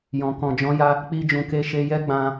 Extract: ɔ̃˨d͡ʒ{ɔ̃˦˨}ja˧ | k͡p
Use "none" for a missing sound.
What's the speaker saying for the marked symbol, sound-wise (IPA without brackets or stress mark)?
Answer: ɔ̃˨˦